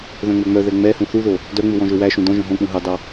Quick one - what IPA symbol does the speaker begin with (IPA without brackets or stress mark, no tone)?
ð